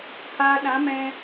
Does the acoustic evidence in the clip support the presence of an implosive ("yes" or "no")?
yes